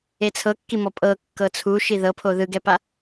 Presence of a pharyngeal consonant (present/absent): absent